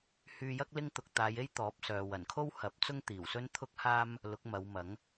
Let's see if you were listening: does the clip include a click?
no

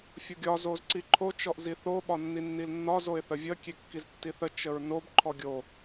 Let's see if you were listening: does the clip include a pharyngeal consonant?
no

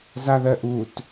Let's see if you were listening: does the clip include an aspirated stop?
no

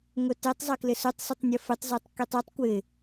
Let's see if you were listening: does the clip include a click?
no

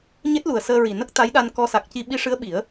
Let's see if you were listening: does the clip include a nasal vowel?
no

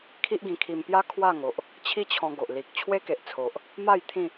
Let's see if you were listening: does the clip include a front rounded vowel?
no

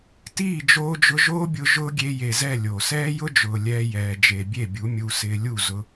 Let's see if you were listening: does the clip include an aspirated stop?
no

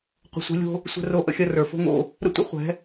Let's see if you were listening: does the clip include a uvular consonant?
yes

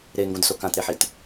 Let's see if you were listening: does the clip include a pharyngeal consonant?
yes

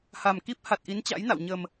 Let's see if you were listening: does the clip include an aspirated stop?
no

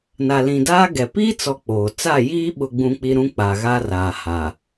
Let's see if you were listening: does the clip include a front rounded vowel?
no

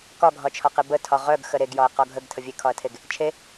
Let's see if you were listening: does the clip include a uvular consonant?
yes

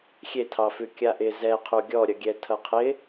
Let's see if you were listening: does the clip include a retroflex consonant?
no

